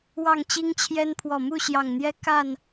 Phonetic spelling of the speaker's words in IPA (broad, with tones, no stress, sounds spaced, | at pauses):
w ɑ˥˨ ŋ t͡ɕ i˦ ŋ t͡ɕʰ j ɛ˦ n pʰ w ɔ˨˩ m u˥˨ ɕ j ɑ˨˩ ŋ n̪ j ɛ˦ k a˥˨ n